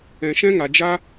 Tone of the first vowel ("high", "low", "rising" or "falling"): low